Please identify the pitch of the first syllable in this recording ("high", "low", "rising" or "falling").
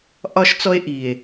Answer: high